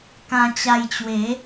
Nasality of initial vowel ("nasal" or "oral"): nasal